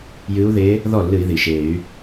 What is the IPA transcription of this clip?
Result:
j ɨ˧˥ u̯ ð eː˧˥ | ð ɔ˥˩ lː ɨ˧˩˧ i̯ ð i˩ ʃ e˧˩˧ y̯

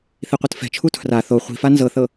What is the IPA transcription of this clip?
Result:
θ i qʷ ɯ t f ɛ̤ t͡ʃʰ u tʰ r a θ o χʷ i̤ f a n z ɤ θ ɤ

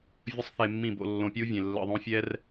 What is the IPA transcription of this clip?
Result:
vʲ ə˦ sˤ θ e˧ mː ĩ˦˨ b o̰˧ lː õ˧ pʲ u˦ vʲ ẽ˨ lː ə̰˧ ðˤ õ˦ fʲ ɛ˦ r

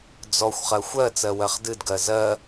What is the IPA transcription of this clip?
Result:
d͡z ɔ xʷ χ ɜ xʷ ɜ t͡s ɜ w ɜ χ d ɨ d ɡ ɜ z ɜ

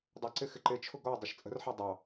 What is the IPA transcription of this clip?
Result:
dˤ ʌ ǀ ɪ x ɪ ǃ ɪ t͡ʃʰ ʊ ɡ ɔ dˤ ə ʃ t͡sʼ ə̤ r ħ ɑ dˤ ɑ

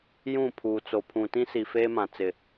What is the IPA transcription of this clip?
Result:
j ũ˦˨ pʰ uː˨ t͡s o˨ pʰ ũ˨ t ĩ˦ s i˨ f eː˦ m ã˨ t͡s ɪ˦˨

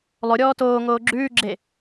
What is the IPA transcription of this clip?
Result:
lˠ o ɾʲ ɔː t oː ŋ oː ɡ͡ǁ ʉː ɡ͡ǁ e

